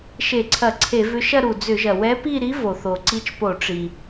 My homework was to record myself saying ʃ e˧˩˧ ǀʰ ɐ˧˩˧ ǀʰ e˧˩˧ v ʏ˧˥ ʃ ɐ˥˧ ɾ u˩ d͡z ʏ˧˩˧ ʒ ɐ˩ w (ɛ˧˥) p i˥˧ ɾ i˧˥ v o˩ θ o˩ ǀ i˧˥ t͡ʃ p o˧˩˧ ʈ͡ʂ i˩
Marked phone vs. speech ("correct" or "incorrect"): correct